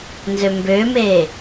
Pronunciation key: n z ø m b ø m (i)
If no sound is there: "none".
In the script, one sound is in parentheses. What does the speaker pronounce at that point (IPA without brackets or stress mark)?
e